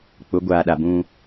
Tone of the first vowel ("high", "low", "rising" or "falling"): rising